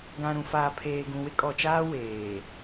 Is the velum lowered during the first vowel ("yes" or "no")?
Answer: yes